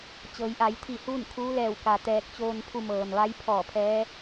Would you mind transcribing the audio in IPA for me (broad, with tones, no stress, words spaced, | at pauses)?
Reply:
t͡ɕɤː˩˧jʔa˩˧jt̪ʰi˧˩ huː˥˨nkʰuː˧˥lɛː˧˩w ka˩ t̪ɛː˧˩k̚t͡ɕoː˧npʰu˧ mɤː˩nʋa˧˥jpʰɔː˧˩ pʰɛː˧˥